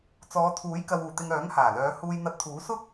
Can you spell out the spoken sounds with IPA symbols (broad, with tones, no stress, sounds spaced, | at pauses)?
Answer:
t͡s ɔː˨˧ t̪ʰ uː˨˥ j k ɐ˨ w uː˨˩ t̪ ɪ˨ ŋ œː˨˥ ŋ h aː˨˩ l œː˨˧ h uː˧ j n̪ ɐ˧ t̚ t̪ʰ uː˨˥ s ʊ˥ k̚